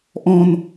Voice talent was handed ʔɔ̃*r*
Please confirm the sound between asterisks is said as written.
no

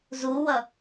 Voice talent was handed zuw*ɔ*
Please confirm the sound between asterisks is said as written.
no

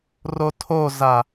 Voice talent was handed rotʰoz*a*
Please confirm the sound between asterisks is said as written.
yes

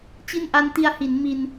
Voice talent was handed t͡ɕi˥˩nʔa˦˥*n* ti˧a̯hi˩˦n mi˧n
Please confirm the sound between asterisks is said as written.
yes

